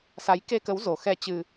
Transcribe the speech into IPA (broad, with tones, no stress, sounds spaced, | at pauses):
s a˨˦ j k e˧ k ə˨˦ w z o˨˩ x ɛ˧ t͡ɕ ɨ˧